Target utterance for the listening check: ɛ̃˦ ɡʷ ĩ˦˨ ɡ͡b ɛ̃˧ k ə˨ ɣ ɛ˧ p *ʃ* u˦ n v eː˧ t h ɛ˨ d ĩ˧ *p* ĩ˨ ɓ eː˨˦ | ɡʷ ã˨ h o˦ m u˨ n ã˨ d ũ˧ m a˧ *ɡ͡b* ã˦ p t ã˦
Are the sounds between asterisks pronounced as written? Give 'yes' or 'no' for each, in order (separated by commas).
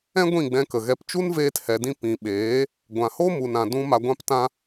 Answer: no, yes, no